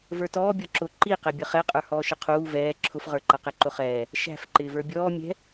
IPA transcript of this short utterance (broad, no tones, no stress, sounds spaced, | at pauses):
v ə˞ t ɔː bʲ ɔ ǁ ʊ ǃ i q ɛ bʲ ʌ χ ɛ qʼ ə˞ h ɔː ʃ ə qʰ uː v ɛː ǁʰ ʊ f ʁ ə˞ ǃ ʌ q ɛ ǃ ʊ χ ɛː | ʃ æ̤ f ǃ ɪː v ə˞ bʲ ɔː mʲ ɛ̤